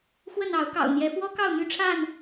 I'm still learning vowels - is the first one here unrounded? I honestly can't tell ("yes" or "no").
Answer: yes